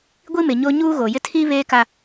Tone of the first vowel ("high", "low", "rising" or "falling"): high